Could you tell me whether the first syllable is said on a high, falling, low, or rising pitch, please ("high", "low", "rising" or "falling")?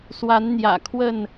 rising